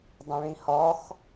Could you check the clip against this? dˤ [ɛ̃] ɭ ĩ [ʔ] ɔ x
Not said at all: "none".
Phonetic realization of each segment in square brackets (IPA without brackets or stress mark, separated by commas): ɛ̃, h